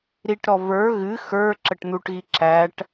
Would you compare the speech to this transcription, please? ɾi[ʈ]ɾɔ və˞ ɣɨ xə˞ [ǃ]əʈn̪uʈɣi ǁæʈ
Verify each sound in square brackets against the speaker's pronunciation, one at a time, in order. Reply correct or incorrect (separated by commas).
correct, incorrect